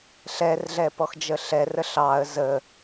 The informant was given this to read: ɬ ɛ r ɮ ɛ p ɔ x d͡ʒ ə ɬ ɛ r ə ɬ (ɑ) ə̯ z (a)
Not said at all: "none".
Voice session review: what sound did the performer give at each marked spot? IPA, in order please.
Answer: ɑ, ə

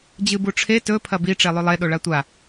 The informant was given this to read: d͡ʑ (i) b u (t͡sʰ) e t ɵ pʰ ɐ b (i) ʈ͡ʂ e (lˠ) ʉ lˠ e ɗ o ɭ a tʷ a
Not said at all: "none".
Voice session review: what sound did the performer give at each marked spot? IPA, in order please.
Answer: ɨ, ʈ͡ʂʰ, i, lˠ

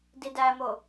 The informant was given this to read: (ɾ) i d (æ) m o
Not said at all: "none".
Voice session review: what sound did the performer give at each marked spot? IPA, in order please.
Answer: d, æ

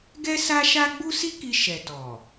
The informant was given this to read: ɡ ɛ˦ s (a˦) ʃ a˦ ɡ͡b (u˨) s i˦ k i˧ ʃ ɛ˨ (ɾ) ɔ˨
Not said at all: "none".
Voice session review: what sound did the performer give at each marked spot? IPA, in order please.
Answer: a˦, u˦, t

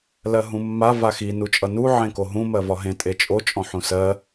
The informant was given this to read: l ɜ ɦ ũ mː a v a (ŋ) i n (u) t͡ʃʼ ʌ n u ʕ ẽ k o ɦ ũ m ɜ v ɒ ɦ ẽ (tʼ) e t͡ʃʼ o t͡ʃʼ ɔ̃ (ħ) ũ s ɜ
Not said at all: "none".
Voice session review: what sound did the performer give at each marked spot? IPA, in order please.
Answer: x, u, tʼ, ħ

